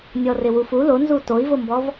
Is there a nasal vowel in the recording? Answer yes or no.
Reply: no